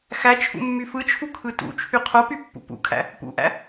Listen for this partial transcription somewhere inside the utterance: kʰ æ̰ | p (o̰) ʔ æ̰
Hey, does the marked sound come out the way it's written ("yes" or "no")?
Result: no